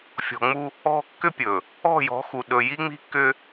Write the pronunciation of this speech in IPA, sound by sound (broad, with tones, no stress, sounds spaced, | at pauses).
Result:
fʲ ɔ̤˨ ŋ͡m u˦ | ɔ̤˦ kː ʏ˦ pʲ ɵ˨ | ɔ̤˦˨ j ɔ̤˨˦ x u˨ ɗ ɵ˨ j i˦ ŋ͡m i̤˦ kː ʏ˦